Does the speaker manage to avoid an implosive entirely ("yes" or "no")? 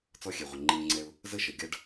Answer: yes